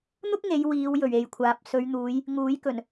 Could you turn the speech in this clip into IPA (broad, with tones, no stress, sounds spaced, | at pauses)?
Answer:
n̪ ʊ˥ k̚ ŋ e˨˧ j w iː˨˧ w j ɵ˨˩ ɥ e˨ j kʷʰ aː˨ p̚ s ɵ˨˧ ɥ n̪ uː˨˧ j | ŋ uː˨˥ j k ɵ˨˩ n